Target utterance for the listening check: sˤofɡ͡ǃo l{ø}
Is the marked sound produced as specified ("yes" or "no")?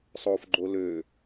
yes